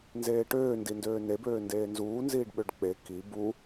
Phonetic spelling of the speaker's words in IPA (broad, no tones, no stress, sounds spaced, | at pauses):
n z eː ʈ øː n d i n d øː n e b øː n d eː n z uː n z iː ɖ ɓ ø ɖ k͡p e k i b u